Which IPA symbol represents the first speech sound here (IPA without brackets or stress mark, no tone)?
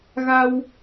ɣ